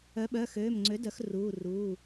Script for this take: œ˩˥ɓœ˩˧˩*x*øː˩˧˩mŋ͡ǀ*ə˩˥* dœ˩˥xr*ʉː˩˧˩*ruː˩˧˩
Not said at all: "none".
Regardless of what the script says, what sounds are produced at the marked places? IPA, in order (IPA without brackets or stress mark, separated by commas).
x, ø˩˥, uː˩˧˩